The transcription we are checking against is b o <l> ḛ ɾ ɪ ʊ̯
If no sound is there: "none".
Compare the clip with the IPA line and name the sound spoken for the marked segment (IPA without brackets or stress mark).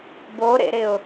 ɾ